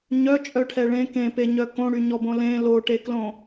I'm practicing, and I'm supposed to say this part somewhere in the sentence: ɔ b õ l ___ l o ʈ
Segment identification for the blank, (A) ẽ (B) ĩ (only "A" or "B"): A